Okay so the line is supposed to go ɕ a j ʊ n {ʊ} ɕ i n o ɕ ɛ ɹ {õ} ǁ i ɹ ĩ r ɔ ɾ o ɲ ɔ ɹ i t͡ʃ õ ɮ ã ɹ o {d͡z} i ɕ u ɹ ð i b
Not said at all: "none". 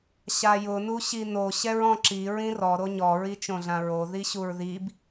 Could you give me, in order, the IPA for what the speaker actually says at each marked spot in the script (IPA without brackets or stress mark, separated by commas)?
u, ɔ̃, ð